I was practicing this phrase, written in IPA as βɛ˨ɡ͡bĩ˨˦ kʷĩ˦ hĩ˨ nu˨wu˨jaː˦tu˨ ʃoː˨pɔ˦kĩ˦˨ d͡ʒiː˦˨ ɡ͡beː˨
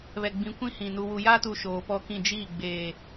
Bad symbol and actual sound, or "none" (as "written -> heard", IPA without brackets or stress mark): none